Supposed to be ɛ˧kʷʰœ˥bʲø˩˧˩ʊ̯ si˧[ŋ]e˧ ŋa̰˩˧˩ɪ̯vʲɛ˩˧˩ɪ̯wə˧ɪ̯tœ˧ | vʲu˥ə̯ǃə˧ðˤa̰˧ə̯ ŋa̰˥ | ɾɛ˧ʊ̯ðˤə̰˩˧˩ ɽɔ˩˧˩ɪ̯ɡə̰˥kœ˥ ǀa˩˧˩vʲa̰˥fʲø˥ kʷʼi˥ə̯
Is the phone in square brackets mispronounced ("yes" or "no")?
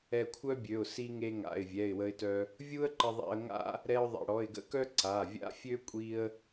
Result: no